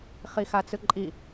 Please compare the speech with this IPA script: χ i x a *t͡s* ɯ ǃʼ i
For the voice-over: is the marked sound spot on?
yes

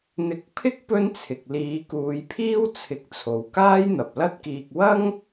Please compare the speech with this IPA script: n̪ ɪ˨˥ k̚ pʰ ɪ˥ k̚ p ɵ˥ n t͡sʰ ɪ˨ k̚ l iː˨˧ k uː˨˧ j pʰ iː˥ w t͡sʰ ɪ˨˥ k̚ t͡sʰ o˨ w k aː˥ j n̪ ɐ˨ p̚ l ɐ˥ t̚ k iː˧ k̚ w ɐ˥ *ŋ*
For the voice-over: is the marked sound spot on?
yes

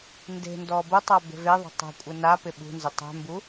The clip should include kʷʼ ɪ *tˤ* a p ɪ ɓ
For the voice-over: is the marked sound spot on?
no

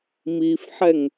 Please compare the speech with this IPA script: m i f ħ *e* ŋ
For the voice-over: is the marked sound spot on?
no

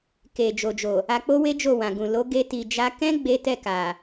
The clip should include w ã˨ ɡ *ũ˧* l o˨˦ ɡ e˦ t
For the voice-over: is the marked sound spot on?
no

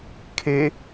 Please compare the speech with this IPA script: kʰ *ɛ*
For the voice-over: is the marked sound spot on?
no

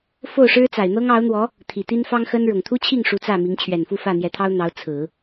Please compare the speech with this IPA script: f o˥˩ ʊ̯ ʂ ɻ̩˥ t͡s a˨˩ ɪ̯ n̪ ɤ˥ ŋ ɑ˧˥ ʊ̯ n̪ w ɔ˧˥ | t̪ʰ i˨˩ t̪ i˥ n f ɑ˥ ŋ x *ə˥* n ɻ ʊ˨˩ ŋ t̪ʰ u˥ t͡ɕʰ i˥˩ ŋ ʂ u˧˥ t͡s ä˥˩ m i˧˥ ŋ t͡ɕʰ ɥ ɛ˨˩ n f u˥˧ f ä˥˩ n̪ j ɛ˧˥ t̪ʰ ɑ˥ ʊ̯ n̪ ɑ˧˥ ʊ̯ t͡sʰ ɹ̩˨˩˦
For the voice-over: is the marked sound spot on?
yes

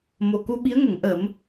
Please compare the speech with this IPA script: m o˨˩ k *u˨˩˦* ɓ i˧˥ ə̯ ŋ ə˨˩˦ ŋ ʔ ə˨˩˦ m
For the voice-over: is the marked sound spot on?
no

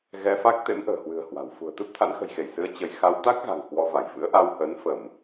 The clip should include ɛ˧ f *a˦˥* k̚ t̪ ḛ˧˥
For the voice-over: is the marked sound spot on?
yes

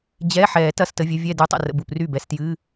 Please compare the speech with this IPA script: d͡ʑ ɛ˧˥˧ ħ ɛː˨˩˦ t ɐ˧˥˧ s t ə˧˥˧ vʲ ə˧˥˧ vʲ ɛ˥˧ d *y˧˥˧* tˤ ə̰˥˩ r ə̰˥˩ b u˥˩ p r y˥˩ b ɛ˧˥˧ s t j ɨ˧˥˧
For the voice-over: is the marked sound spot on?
yes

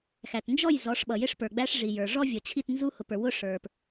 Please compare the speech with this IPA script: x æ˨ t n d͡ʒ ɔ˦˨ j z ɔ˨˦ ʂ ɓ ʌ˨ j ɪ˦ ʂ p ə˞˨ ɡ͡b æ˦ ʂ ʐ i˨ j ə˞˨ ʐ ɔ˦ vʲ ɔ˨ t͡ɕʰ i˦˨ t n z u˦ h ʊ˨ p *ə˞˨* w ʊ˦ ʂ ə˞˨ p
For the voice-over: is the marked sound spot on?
yes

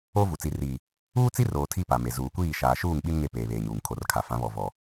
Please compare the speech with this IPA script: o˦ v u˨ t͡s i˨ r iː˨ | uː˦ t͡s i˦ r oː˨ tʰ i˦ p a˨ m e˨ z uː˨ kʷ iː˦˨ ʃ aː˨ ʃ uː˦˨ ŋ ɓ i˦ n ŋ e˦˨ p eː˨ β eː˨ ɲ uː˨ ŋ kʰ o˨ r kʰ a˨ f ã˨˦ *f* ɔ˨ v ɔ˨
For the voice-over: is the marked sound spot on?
no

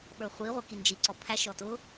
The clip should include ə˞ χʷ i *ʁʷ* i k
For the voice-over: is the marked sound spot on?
yes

